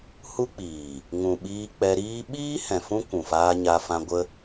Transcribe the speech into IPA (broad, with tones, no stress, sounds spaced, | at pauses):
h u˦ k͡p iː˨ | ŋ ũ˨ ɓ iː˧ k͡p ɛ˧ ɾ iː˦ ɓ iː˦ h ɛ̃˨ f ũ˦ kʷ ũ˨ f aː˧ ɲ a˧ f ã˧ ɡʷ ə˦